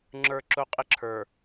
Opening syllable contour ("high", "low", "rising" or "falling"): low